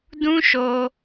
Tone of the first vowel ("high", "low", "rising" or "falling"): high